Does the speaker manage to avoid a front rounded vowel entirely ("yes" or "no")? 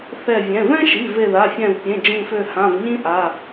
no